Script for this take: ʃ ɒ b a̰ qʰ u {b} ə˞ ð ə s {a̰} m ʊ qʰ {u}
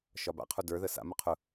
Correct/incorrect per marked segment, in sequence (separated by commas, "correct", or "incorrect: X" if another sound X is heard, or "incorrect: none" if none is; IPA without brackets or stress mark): incorrect: d, correct, incorrect: ʊ